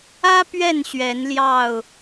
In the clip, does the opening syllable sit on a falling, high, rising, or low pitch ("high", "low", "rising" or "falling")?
high